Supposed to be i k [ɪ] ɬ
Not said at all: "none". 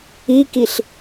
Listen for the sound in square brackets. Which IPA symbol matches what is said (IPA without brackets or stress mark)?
i